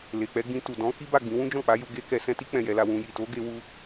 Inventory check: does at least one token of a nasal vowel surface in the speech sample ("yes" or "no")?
yes